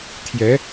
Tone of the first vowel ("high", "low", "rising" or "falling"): rising